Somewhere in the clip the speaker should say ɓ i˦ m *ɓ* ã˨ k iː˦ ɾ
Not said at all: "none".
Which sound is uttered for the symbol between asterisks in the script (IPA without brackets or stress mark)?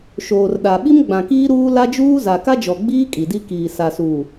ɡ͡b